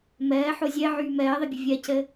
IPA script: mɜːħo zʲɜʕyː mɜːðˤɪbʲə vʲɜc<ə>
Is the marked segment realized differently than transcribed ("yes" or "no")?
no